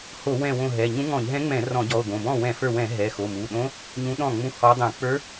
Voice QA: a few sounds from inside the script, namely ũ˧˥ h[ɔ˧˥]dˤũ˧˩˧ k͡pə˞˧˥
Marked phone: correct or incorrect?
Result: correct